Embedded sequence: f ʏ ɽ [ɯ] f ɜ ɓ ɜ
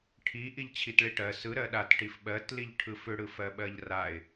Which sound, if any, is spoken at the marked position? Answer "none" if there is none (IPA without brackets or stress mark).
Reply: ɯ